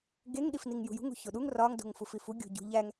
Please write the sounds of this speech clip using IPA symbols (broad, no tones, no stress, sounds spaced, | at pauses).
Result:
ɡ e ŋ ɗ i f n i ŋ j ṳ j ṳ ŋ ṳ ç o ɗ u ŋ r ɒ ŋ d o̤ ŋ f u f i f u ɡʲ o̤ ɟ ṳ ʎ æ ŋ